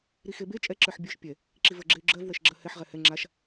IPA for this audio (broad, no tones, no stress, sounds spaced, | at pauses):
ɾ i x e b e t͡ʃʼ ɛ ǁ ə˞ ħ bʲ ə˞ ʃ pʲ ɛ | ǁ i v ə˞ ɡ͡ǁ e y̯ ɡ͡ǁ ɜ v w ɛ ʃ ɡ͡ǁ ɜ h ɛ ħ ʁ ɛ h ɛ ŋ͡ǁ a ʃ